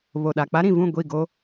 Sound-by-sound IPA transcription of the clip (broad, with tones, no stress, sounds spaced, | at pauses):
β o˨ ɗ a˨ k͡p a˦ ɾ ĩ˨ v ũ˦˨ ɡʷ i˦˨ ɡ o˦